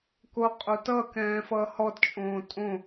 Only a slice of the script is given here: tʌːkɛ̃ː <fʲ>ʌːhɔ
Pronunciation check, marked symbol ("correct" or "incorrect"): incorrect